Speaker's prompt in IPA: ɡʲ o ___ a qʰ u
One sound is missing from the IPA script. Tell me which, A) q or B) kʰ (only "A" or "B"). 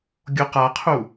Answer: A